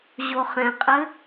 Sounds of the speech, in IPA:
ʑ o χ ɛ̃ qʼ ɘ

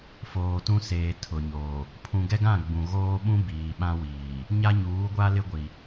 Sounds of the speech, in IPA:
f oː˨ t ũ˦ s eː˨ tʰ ʊ˨ ɲ oː˨ | pʰ ũ˨ ɡ ɛ˦ ɡ ã˦˨ ɡ͡b ũ˨ ɣ oː˦ ɓ ũ˦ b iː˨ ɓ ã˦ w iː˨ | ɲ a˦ ɲ uː˨˦ ɡʷ a˦ l ɪ˦ ɡʷ i˨

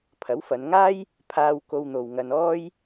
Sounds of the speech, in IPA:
pʰ ɐ˨˥ w f ɐ˨˧ n ŋ aː˥ j | pʰ aː˧ w k o˧ w n̪ o˨ w ŋ ɐ˧ n ɔː˥ j

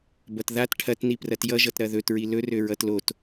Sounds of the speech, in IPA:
b ʌ t ð a t ʈʰ ɐ t n i p r ɐ t j ʌ ʒ ʌ t ɾ ɐ ð ɵ t ɹ i l ɵ r ø ɹ ʌ t l o t

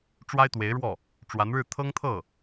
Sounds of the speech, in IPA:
ʈ͡ʂ w a˥ ɪ̯ t̪ w e˧˥ ɪ̯ ɻ w ɔ˥˩ | ʈ͡ʂ w a˧˥ n ɻ ɻ̩˥˩ t̪ʰ ɤ˥ ŋ t̪ʰ ɤ˥˩

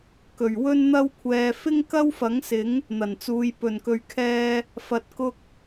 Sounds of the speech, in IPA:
k ɵ˨˩ ɥ w ɵ˧ n n̪ ɐ˧ w kʷʰ ɛː˨ f ɪ˥ ŋ k ɐ˥ w f ɐ˨˥ ŋ s ɪ˨˥ ŋ | n̪ ɐ˨˩ n t͡s uː˨ j p ɵ˨˩ n k ɵ˨ ɥ kʰ ɛː˧ | f ɐ˨ t̚ k ʊ˧ k̚

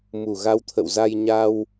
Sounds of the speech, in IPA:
m u˧˩ ɣ a˧ w t̪ʰ ə̰˧˨ w z a˧ j ɲ a˧ w

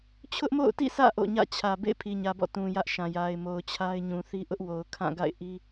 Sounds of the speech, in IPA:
t͡ɕʰ ʊ˦ ʔ m o̰˦˨ ʊ̯ t ḭ˦˨ sʰ ä̰˦˨ ʔ o̰˦˨ ɲ ä̰˦˨ t͡ɕʰ ä˨ b ḛ˦˨ ɪ̯ pʰ i˨ ɲ ä˨ b ɔ̰˦˨ t ũ˨ j ä˦ ʔ ʃ ã˨ j a˨ ɪ̯ m o˨ ʊ̯ t͡ɕʰ a˦ ɪ̯ ɲ ũ˨ θ i˦ ʔ ʊ˦ ʔ w o˨ ʊ̯ kʰ ã˦˨ ɡ a̰˦˨ ɪ̯ ʔ i˦

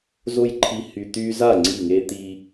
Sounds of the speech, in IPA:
z o˦ j ǃʰ i˧ h y˧ t̪ y˧ z a˦˨ ŋ͡ǀ i˦˨ ŋ e˦ t̪ i˧

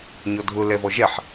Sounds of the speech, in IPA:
ɲ ɔ dʱ ʊ l ɛ v ɔ ʒ ɛ ħ

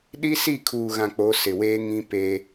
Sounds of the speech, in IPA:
ɗ i˦ s i˦˨ kʰ uː˨ ɣ ã˨ k͡p o˨˦ s ɪ˨ w eː˦ ŋ ĩ˦ p e˦

